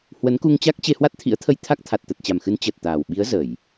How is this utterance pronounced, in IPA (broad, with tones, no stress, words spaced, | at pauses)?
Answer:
hwə˨˦nku˧ŋt͡ɕa˦˥k̚ t͡ɕe˧hwa˦˥t̚t̪ʰḭ˧˥ə̯t̪ʰə˧j t̪ʰa˦˥k̚t̪ʰa˨˩t̚t̪ə˨˩t̚t͡ɕa˨˩m xɨ˨˦n t͡ɕəː˨˩t̚t̪aː˨˩w ɓi˨˦ə̯zə˧˩˨j